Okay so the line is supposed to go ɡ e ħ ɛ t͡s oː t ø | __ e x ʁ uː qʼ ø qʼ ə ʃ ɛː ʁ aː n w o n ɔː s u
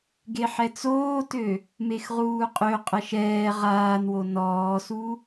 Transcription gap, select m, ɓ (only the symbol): m